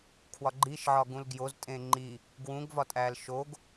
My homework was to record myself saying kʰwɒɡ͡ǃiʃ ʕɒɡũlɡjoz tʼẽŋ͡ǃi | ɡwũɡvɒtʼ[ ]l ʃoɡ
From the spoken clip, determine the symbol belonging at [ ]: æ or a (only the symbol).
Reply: æ